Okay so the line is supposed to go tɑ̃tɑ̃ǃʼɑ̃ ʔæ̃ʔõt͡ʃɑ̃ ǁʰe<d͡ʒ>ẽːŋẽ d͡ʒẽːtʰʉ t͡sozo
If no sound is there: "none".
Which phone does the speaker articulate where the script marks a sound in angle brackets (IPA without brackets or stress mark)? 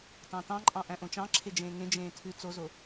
d͡ʒ